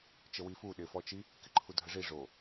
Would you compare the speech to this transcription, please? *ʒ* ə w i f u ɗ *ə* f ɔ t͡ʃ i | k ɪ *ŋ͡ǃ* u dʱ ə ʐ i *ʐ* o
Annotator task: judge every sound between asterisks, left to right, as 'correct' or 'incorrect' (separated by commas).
incorrect, incorrect, incorrect, correct